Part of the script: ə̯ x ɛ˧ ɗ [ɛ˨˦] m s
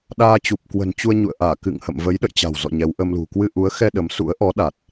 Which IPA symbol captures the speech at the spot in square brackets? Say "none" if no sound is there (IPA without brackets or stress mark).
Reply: ə˨˦